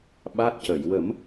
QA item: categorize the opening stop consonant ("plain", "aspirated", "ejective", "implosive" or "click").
implosive